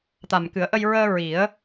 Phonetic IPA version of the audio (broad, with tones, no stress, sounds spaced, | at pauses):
t̪ a˨˩ m k ɨ˨˩˦ ə̯ ʔ ə˧ j ɹ əː˧ ɹ i˨˩˦ ə̯